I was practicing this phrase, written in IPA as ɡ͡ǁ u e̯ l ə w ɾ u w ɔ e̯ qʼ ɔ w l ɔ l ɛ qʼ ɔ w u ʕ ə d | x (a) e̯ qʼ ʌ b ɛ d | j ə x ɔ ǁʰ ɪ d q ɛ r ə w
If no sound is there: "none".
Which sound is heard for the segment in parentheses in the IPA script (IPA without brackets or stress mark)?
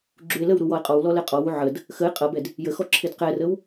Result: ə